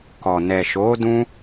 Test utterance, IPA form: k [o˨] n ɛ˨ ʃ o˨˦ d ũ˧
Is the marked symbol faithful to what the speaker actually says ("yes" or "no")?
no